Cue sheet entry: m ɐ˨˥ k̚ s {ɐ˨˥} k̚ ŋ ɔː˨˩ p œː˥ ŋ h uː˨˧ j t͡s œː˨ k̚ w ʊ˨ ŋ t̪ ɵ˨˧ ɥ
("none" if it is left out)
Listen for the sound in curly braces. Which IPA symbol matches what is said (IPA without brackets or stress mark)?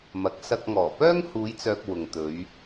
ɐ˧